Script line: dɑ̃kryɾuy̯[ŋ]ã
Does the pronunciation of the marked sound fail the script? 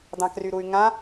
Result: no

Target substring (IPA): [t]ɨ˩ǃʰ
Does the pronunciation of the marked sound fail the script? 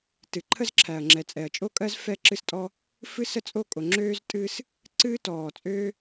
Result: no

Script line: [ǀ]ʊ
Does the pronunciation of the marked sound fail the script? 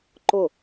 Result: yes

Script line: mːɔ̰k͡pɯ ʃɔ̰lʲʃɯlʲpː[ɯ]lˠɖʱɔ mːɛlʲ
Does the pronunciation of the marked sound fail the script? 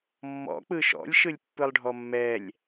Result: no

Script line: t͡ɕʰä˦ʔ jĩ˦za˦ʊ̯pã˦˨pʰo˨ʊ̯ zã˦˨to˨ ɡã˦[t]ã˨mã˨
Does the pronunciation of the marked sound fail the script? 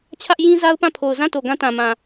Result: no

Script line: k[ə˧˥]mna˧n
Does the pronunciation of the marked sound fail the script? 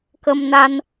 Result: yes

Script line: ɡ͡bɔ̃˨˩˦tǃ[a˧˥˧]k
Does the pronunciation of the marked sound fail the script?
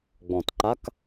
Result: no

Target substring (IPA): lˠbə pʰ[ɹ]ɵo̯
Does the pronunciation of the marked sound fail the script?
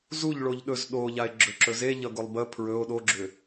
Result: no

